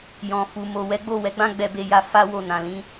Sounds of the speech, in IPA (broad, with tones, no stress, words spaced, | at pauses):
jɔ̃˨fu˨ mo˨wɛ˨˦ ɡ͡bo˦˨wɛ˨˦ɡ͡bã˦ ɡ͡bɛ˧be˧ja˧ fa˦wo˦˨nã˨lĩ˨˦